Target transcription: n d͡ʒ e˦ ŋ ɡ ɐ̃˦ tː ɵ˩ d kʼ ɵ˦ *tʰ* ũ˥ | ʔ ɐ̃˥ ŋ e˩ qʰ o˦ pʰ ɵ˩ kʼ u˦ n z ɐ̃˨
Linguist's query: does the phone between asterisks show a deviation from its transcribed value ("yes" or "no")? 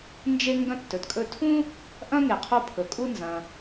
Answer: no